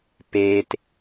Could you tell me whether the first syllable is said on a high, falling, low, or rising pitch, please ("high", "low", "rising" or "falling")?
low